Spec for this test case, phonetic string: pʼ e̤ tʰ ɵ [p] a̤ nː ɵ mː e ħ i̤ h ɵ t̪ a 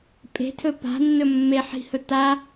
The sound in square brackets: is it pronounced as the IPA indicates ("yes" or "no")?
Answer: yes